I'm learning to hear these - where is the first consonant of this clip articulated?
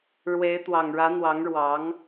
retroflex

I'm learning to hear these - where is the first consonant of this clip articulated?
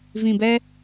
lips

